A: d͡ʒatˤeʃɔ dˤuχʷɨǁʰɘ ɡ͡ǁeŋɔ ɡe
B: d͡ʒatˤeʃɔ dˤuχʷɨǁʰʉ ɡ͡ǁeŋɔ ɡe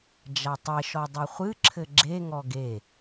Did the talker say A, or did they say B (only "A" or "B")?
A